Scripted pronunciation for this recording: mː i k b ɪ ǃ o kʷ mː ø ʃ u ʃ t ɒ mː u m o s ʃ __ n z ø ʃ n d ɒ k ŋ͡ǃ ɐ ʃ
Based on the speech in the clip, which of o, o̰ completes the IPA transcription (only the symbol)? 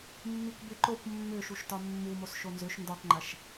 o